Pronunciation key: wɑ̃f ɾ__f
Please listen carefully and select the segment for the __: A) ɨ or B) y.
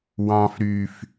B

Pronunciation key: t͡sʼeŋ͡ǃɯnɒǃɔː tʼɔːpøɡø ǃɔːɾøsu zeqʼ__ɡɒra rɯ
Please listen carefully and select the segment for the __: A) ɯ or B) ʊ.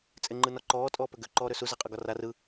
A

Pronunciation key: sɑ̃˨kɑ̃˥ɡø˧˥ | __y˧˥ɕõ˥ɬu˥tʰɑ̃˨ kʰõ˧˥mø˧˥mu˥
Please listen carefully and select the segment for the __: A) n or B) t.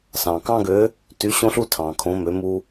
B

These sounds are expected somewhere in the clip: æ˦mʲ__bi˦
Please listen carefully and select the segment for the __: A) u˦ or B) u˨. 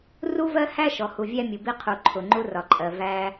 B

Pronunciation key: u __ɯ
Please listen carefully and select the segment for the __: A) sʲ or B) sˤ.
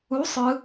B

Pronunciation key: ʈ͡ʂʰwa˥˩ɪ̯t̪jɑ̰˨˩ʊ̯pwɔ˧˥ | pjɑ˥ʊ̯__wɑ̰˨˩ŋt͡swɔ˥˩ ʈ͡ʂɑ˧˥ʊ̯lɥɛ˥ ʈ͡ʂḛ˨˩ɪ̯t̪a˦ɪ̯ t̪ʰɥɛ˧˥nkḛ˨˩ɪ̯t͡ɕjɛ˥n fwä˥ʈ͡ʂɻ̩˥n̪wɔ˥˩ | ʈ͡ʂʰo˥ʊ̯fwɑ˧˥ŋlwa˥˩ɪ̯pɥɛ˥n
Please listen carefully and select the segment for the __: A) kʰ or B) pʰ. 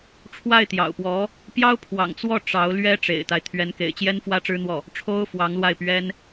B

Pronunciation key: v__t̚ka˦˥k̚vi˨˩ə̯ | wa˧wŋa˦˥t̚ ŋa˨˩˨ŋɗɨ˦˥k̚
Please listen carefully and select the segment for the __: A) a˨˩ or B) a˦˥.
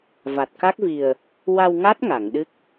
A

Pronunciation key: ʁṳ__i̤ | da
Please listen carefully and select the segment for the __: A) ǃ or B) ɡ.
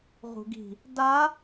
B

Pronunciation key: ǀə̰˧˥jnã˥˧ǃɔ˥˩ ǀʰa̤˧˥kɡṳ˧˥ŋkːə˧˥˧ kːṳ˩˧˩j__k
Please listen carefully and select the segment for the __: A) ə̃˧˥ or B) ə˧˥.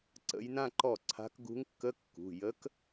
B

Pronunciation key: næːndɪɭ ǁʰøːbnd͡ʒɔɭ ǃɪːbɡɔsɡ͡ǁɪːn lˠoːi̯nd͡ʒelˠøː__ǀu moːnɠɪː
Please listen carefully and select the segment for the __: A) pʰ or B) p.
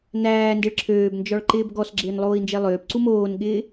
B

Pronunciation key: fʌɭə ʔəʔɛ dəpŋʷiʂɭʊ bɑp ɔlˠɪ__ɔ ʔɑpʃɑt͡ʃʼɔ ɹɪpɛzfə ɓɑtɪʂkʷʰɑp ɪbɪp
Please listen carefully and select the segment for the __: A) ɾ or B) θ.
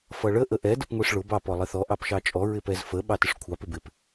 B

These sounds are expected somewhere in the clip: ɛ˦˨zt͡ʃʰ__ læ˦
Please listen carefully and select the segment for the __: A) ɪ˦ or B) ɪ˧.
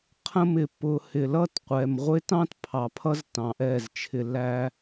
B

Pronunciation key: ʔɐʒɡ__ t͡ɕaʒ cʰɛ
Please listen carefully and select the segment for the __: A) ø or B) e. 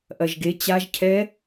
B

